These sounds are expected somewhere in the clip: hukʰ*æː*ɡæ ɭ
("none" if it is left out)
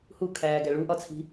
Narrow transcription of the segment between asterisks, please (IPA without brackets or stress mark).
æː